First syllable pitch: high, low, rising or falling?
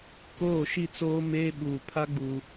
falling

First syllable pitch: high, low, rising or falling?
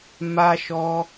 high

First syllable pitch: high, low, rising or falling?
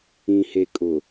low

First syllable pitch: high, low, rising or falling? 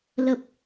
low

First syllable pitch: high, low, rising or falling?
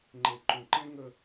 low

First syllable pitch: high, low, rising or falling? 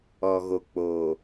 low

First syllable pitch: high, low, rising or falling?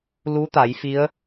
rising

